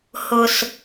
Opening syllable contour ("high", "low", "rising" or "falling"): low